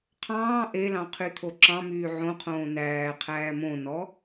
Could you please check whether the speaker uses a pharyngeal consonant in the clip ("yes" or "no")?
yes